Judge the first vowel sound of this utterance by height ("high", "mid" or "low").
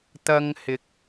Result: low